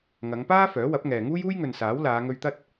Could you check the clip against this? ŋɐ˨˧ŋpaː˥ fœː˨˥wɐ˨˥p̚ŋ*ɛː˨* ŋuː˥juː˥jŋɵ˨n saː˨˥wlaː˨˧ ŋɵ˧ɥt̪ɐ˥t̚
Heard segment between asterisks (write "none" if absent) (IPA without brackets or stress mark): ɛː˨